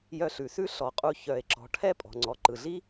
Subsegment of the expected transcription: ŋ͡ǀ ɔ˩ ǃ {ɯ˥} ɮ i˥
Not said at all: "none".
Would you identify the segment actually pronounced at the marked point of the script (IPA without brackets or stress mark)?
ɯ˩